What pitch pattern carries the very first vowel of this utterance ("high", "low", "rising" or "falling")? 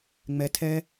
high